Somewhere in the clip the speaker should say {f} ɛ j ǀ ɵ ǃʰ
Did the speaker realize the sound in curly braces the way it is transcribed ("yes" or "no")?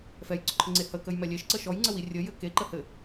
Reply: yes